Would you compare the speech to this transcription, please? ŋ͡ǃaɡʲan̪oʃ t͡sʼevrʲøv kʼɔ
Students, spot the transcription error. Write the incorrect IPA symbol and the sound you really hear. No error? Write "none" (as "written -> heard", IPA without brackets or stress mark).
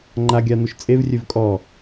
none